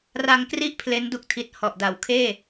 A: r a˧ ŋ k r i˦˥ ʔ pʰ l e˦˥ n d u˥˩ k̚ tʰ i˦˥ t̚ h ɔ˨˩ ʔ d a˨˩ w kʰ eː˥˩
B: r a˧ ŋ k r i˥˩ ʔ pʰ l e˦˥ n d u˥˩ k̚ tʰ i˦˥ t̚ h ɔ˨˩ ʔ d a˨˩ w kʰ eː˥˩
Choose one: A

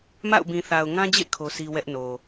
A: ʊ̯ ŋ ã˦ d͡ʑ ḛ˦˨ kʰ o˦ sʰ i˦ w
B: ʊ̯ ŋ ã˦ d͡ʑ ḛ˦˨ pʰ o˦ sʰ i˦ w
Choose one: A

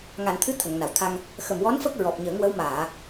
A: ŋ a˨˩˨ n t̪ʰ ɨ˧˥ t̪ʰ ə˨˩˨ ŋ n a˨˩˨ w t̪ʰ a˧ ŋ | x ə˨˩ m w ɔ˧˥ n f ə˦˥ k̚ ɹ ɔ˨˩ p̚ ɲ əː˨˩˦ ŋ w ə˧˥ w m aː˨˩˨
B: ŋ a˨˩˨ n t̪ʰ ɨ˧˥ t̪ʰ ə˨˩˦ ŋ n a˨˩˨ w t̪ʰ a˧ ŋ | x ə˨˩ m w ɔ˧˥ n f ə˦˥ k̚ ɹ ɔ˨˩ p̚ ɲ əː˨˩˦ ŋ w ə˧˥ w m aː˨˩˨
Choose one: A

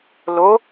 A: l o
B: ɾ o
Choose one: A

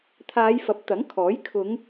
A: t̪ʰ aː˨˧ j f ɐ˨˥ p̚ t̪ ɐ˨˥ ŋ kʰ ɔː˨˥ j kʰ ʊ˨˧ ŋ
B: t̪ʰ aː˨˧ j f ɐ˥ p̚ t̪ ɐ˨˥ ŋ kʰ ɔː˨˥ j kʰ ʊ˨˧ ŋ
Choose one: A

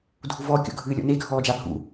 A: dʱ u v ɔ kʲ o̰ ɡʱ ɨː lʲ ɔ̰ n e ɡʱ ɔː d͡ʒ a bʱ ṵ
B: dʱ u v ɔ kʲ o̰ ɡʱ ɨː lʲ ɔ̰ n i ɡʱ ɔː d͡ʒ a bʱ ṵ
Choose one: A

